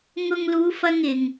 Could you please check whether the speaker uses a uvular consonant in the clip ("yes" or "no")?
no